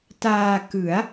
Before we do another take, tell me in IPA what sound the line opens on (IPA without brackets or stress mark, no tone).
t